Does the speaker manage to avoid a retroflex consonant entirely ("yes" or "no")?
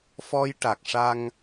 no